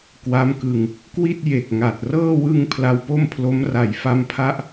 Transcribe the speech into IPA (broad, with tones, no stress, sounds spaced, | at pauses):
k w a˦˥ m k ɯ˧ ŋ | k w i˥˩ t̚ j e˨˩ k̚ ŋ a˨˩ t̚ r ɤː˥˩ w ɯ˧ ŋ pʰ l a˧ w p o˥˩ m pʰ l o˦˥ m r a˩˦ j f a˧ m pʰ a˦˥ ʔ